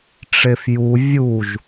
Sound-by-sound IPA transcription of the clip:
ʈ͡ʂefju vʲuʒ

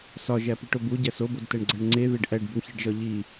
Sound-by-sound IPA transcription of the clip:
sɒʒæpiʈob uɟæs obodtæɳɡ͡ǀæɳ ŋ͡ǀeðeɖ ʔæɖbuɳçeɖʒɒ ʎi

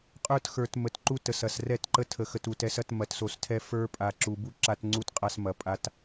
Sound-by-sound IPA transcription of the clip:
qʼə˞˦txə˞˨t mə˨tǃu˦ tə˨sɐ˨s rɛ˦˨tǃə˦tʰə˨ xə˨tu˨tɛ˨˦sɐ˦t mɐ˨tso˨stʰɛ˦ fə˞˦pʼa˨ ǁu˨bu˦ ǁa˦tŋ͡ǀu˦tqʼa˦smɐ˨ pʼa˦t

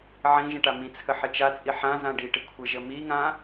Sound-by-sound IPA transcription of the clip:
ʕĩʒə̃ ʈamĩt͡sʰə ħɪt͡ʃat͡sʼi ħã zãɖiʈɪ kʷʰɪʒə miŋã

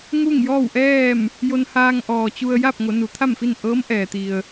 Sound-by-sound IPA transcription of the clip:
ŋu˥˨ŋjɔː˥˨wʔɛː˥˨m | jo˧nhaː˧ŋʔɔː˩ t͡ɕu˧ə̯ ja˥˨p̚ŋo˩˧ nu˩˧t̪ʰa˥˨mfi˥˨n ʔɤː˧˥mʔɛː˩t̪i˩ə̯

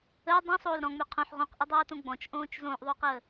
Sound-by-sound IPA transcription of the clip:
əː dˤõsˤoːl ɾɔ̃ŋ͡mø qʰõħ ʁõqʔədˤoːtõ ɡ͡bɔ̃t͡ʃʔõːt͡ʃ zõːʔðˤoːqəː

